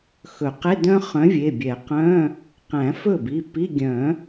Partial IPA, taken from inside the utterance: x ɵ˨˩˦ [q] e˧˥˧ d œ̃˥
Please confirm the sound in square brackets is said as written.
yes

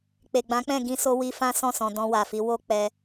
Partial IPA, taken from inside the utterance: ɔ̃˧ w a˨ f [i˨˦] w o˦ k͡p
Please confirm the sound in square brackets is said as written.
yes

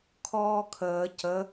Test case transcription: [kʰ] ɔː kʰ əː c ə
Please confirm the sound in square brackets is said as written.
yes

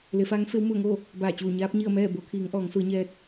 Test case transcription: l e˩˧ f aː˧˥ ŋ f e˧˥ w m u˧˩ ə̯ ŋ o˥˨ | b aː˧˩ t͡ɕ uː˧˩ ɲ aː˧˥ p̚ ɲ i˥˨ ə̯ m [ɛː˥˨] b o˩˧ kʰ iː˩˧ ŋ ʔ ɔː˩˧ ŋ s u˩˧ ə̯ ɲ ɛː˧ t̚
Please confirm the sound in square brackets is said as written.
yes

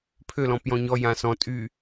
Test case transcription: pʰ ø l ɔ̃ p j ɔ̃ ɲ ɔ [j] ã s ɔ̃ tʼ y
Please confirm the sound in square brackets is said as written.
yes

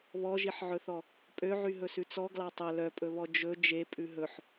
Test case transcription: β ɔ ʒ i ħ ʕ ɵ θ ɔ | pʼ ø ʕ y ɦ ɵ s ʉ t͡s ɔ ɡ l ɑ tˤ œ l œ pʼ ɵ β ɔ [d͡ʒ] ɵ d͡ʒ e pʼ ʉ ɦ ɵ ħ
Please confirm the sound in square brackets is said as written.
yes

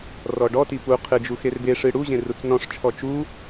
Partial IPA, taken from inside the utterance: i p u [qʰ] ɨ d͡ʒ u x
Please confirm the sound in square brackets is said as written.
yes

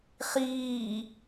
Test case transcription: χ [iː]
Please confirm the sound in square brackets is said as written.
yes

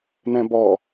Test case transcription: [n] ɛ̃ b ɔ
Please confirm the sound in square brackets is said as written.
yes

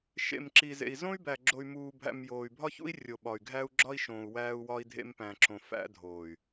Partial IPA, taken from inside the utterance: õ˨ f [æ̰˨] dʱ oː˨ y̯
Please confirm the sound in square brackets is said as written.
no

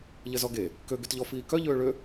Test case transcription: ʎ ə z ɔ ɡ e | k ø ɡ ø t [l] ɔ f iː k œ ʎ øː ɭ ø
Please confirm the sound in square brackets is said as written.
no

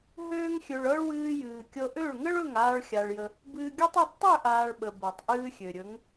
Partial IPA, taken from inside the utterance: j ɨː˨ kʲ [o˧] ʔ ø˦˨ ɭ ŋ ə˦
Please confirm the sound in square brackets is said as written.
no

